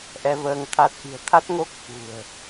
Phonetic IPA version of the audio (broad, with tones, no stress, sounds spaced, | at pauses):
ʔ ɛ˧ v əː˧ ŋ t̪ʰ a˦˥ t̚ ʔ i̤˨˩ ə̯ t̪ʰ a˦˥ t̚ ŋ o˦˥ k̚ f ṳ˨˩ ə̯